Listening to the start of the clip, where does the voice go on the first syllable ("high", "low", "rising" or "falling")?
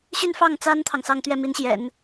falling